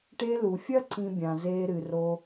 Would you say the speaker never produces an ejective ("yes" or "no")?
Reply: yes